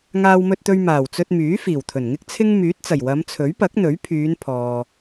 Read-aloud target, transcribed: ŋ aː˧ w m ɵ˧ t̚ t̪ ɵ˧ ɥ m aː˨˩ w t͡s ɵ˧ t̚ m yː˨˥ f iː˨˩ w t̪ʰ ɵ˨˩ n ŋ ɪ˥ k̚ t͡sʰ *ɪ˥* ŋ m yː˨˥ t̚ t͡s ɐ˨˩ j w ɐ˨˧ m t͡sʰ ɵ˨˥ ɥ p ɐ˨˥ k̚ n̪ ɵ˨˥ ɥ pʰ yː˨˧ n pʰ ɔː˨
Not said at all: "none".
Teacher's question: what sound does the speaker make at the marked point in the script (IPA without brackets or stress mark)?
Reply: ɪ˥